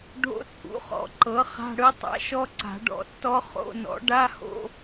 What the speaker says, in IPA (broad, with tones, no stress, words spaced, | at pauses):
ɖʱo̰˦˥t͡sʼṵ˩˥χɔ̰˨˩˦ ǃɤ˩˥ χa̤˧˥˧ɽɯ˦˥tˤa̰˧˥˧ʃɔ˦˥ ǀa̤˨˩˦ɖɔ̰˩˥tːɔ˦˥ χo̰˧˥˧nɔ̰˩˥ ɖa˧˥˧ho̰˧˥˧